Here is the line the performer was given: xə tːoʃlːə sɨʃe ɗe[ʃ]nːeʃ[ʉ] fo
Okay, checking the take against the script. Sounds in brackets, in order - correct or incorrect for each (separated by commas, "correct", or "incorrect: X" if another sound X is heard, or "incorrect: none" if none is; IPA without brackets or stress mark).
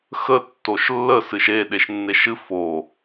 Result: correct, incorrect: ɨ